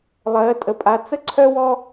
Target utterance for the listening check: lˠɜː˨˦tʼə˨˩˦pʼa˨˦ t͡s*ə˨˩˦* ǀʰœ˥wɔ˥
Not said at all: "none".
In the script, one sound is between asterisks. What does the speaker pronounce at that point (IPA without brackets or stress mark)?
ə˥